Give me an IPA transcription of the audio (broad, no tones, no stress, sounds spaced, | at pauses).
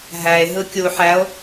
ɦ æ e̯ ɦ ɯ kʲ u ħ æ o̯